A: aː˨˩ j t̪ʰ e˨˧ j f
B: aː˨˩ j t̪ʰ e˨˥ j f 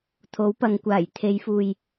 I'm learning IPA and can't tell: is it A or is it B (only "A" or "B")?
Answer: A